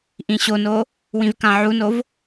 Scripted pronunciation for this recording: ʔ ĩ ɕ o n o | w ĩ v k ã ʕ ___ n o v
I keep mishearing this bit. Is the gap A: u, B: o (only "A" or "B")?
A